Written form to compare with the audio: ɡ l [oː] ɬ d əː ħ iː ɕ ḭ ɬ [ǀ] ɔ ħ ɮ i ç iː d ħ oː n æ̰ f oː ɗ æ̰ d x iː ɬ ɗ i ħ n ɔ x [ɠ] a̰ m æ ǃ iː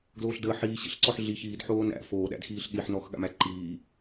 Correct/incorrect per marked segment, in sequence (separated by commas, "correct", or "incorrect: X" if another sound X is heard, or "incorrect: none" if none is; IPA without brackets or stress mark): correct, correct, correct